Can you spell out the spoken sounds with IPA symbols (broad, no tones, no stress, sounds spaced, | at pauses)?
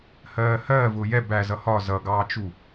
h ɜː h ɜː v ʊː j ɛ b æ z ʌ h ɒ z ʌ ɡ ɑː t͡ʃ u